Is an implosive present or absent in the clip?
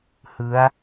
absent